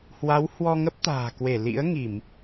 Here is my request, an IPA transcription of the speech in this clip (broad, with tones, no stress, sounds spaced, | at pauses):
h w a˨˦ w h w ɔ˧ ŋ ə˦˥ p̚ t̪ a̤ː˨˩ k w e˧˩ l ḭ˧˥ ə̯ ŋ i˧˩˨ m